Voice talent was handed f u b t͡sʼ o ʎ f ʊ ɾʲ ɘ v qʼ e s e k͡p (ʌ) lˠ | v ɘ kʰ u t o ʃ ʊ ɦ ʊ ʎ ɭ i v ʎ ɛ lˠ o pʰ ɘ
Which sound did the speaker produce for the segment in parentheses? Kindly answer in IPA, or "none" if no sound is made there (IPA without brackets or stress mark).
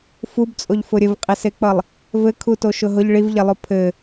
ʌ